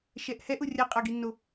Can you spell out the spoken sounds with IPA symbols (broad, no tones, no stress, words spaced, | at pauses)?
ʃɛʔhɛʔʊ rʲaqʼaɡinːo